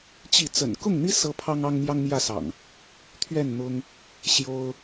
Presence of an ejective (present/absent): absent